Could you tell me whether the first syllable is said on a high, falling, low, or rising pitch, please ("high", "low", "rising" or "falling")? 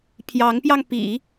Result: rising